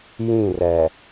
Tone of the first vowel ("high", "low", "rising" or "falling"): falling